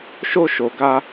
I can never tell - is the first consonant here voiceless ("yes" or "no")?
yes